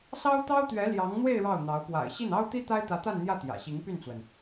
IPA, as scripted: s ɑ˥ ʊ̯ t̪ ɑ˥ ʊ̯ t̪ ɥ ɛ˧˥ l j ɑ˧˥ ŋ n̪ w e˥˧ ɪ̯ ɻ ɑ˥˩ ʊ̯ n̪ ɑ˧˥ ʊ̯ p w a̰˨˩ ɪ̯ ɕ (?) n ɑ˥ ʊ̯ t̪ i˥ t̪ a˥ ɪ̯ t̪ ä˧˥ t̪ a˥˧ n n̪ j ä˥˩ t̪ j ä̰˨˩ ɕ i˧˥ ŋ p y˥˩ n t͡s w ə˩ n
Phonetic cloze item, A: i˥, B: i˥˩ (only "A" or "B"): B